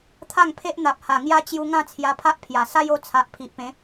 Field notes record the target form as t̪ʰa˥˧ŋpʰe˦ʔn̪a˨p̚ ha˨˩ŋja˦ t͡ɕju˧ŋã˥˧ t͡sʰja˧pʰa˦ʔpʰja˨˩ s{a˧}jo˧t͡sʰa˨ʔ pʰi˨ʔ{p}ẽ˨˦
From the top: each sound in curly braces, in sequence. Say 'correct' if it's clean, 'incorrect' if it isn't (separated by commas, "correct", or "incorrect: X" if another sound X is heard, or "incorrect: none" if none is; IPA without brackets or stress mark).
incorrect: a˦, correct